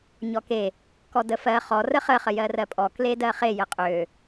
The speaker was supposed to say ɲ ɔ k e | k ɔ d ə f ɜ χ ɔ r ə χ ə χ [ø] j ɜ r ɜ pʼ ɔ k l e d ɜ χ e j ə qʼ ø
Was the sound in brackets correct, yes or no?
no